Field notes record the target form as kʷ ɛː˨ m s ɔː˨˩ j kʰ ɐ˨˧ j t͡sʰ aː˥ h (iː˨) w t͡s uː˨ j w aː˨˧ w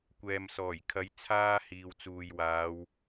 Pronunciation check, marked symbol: correct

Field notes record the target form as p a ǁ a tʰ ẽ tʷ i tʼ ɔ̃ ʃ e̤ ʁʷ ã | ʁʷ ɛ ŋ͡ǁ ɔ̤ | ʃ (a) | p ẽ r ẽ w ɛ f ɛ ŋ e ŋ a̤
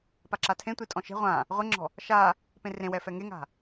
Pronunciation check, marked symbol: correct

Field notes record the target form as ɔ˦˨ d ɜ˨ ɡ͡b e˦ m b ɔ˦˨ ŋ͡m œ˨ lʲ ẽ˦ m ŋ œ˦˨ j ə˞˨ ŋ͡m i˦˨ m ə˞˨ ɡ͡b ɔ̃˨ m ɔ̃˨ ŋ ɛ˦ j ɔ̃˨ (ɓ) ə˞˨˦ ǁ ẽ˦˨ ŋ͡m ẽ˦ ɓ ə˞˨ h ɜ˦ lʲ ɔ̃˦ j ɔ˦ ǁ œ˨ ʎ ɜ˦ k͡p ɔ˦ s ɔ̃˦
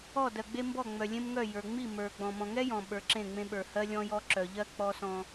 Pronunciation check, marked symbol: correct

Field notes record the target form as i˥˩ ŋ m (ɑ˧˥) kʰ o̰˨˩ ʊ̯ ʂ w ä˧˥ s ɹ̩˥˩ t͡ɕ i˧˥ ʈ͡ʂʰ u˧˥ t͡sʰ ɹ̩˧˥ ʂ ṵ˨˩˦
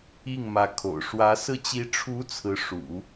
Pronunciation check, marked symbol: incorrect: ä˧˥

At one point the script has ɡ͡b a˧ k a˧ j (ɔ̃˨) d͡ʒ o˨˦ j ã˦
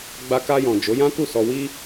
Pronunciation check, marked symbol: correct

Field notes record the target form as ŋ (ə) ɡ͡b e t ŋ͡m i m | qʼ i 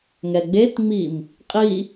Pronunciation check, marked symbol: incorrect: ɛ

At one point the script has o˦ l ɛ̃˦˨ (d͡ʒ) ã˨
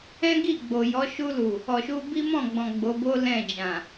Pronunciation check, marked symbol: correct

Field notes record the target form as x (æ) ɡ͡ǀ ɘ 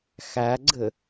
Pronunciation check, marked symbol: correct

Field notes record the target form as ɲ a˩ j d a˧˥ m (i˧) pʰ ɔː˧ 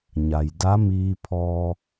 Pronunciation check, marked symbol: incorrect: iː˧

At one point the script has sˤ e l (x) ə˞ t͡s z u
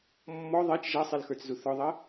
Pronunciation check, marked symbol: correct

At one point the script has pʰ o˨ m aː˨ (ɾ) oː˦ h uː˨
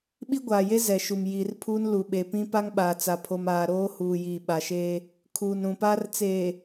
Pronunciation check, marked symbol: correct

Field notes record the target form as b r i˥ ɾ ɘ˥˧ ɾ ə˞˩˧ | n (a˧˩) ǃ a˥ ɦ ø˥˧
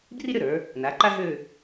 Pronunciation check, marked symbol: incorrect: a˩˧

